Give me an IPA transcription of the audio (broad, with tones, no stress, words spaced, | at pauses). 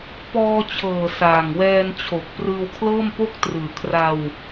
pɔː˧t͡ɕʰɤː˨˩ saː˨˩ŋwɛː˧nt͡ɕʰo˨˩k̚ prɯː˧wkʰlɤː˥˩mpo˥˩k̚ trɯː˨˩kʰra˧w